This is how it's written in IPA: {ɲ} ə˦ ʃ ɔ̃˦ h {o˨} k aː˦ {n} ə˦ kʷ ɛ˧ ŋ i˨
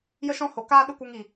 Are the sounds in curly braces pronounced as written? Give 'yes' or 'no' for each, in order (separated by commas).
no, yes, no